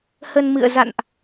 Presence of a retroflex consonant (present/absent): absent